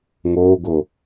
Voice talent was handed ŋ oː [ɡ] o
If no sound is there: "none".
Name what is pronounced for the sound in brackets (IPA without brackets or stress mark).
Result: ɡ